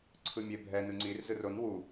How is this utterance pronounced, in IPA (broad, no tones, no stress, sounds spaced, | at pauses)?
ǀʰ ɯ mʲ e bʱ ɛ n ɯ ŋ͡ǀ i r z ɯ r o n w u